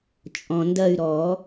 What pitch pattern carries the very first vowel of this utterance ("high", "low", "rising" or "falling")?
low